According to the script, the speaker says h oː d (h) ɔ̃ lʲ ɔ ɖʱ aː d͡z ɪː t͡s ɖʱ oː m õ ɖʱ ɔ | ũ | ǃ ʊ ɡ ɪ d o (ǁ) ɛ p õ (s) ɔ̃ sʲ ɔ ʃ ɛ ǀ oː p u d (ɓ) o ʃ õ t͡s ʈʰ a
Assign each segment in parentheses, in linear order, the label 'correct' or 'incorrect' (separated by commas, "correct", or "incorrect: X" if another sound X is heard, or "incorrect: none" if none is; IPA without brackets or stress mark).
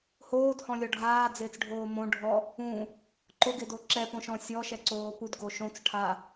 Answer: correct, correct, incorrect: ʃ, incorrect: ɡ